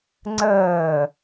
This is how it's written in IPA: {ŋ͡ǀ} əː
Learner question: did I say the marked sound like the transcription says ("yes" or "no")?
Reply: yes